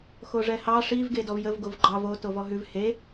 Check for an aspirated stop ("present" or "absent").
absent